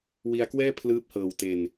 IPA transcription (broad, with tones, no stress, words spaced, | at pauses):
wi˧a̯kwɛː˥˩ pʰlɯː˦˥p̚hɤː˨˩wte˨˩n